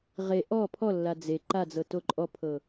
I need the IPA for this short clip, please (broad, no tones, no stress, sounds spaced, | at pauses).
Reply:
ʁ e ʔ ɔ pʰ ɔ lː a d͡z e ǃ a d͡z ɤ t o ǃʼ ɔ pʰ ɤ